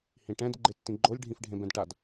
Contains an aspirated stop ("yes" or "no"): no